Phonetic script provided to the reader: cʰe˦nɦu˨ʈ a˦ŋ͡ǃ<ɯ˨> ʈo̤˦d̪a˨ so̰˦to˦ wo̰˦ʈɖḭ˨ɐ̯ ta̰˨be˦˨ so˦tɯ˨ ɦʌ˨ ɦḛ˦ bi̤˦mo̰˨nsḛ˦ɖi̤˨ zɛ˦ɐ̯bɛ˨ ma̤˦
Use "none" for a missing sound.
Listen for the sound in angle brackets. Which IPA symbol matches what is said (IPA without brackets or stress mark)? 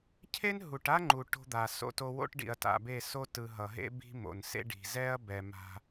u˨